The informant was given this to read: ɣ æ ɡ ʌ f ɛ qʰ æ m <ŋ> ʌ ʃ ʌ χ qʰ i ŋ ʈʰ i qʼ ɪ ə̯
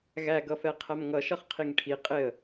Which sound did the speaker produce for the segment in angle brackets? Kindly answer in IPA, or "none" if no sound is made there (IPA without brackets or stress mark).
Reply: ŋ